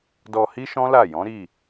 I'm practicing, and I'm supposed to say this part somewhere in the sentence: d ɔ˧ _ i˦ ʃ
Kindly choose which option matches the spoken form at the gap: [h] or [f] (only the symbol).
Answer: h